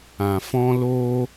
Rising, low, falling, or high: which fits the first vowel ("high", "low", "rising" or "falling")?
low